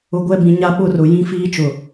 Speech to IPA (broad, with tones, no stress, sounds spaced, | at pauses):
ʊ˨ ɡʷ ɛ˦˨ b ĩ˨ ɲ a˦ ɓ ʊ˦˨ r ʊ˨ j ĩ˦ f iː˦ t͡ʃ ʊ˨